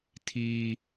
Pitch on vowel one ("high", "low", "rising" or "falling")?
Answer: high